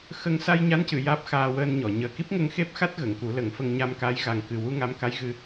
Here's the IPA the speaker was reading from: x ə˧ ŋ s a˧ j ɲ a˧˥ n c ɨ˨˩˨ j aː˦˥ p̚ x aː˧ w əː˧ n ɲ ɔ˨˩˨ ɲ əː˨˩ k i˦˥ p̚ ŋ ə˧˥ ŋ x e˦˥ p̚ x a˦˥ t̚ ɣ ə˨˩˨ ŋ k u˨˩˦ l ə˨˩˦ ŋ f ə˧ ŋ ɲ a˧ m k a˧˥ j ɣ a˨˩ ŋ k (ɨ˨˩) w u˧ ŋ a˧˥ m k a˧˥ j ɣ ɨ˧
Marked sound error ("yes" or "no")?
no